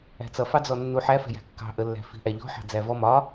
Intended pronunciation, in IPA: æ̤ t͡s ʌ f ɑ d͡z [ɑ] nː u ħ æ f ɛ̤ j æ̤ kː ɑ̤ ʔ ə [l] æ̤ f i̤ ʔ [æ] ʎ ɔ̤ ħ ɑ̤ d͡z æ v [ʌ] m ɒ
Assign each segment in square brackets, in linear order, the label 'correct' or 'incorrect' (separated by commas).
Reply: incorrect, incorrect, correct, incorrect